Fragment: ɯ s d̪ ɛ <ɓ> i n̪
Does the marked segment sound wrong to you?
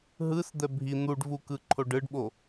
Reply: yes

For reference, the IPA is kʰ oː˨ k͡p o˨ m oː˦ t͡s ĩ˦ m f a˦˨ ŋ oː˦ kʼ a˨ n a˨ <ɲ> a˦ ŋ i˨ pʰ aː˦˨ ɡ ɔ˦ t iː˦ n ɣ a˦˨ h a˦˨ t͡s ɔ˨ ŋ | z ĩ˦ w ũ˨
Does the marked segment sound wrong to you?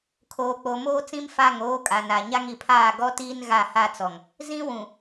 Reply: no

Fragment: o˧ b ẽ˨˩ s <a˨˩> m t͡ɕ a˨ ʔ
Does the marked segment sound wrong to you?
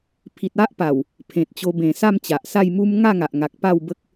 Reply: yes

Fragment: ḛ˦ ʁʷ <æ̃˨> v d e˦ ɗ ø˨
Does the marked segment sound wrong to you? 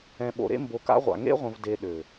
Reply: yes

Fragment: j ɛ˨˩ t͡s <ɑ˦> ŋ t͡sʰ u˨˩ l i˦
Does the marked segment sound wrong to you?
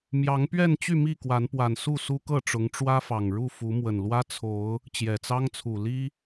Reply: no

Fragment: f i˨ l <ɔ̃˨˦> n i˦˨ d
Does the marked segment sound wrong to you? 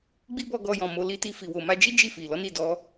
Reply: yes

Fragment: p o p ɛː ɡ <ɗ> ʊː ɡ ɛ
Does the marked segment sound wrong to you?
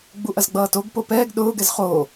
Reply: no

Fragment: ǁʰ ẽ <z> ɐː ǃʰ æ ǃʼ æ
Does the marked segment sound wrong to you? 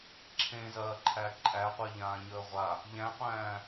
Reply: no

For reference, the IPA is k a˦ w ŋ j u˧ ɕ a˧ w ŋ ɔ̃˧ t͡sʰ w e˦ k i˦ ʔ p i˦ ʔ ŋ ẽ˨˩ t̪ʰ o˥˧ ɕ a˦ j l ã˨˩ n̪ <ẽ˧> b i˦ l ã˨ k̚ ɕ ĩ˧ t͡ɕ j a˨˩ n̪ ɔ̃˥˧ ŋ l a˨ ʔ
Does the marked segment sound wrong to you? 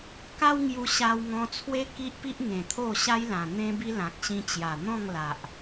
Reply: yes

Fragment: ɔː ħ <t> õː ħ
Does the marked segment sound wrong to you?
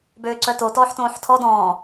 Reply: no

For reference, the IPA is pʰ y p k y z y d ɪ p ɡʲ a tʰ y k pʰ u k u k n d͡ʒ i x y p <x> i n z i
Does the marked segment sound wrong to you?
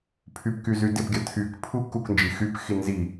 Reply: no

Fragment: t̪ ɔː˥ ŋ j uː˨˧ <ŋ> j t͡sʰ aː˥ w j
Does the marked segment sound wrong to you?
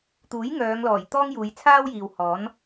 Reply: yes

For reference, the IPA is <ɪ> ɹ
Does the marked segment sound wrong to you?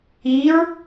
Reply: yes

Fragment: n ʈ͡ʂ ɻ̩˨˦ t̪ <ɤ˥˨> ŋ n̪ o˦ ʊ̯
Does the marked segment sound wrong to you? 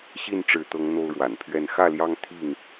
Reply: yes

